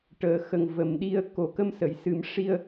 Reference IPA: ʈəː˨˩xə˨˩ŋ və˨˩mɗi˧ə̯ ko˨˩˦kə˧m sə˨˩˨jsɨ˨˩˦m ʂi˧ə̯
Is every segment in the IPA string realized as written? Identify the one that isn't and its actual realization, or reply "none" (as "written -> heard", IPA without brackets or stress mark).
none